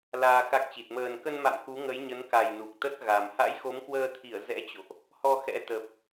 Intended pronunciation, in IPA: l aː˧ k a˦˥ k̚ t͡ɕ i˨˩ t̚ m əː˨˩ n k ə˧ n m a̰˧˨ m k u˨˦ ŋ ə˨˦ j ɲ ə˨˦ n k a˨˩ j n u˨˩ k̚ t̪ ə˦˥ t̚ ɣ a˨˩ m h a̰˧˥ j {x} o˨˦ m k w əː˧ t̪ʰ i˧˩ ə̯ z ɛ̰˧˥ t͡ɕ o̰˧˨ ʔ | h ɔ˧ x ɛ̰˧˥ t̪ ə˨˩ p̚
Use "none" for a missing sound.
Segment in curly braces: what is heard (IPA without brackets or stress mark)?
x